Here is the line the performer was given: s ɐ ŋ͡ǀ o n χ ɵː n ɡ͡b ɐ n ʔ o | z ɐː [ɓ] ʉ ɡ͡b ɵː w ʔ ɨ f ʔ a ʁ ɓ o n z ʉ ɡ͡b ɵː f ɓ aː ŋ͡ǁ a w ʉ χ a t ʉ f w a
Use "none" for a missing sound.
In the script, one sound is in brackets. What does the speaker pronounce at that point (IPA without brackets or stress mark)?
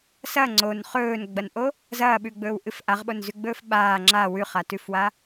ɓ